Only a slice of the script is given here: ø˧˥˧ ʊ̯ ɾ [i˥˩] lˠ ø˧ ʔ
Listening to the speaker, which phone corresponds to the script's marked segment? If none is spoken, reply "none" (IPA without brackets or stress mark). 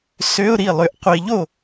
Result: i˥˩